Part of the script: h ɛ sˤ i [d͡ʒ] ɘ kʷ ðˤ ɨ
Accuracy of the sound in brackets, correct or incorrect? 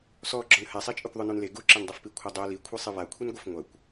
incorrect